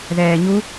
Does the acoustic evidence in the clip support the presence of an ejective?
no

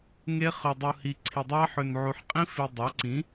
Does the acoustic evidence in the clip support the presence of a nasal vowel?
yes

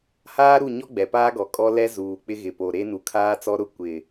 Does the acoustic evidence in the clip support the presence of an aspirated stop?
yes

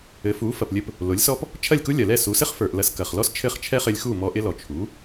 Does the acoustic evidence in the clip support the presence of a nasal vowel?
no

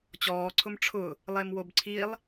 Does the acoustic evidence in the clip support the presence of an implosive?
no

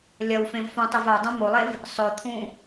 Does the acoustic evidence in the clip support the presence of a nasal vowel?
yes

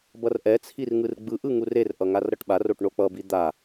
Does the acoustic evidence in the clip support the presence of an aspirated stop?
yes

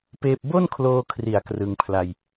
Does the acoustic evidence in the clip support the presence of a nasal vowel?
no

